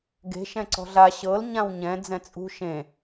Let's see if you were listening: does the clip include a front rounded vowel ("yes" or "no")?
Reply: no